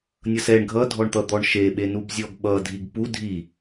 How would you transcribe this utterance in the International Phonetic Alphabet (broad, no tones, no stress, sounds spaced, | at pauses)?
nʲ ʌ s ɛ ɳ ɡʱ ʌ dʱ ɔ ɳ t̪ ʌ d̪ ɔ ɳ ʃ e ɓ e n u b zʲ ɔ ɡ ɓ ʌ dʱ i ɡ p u dʱ i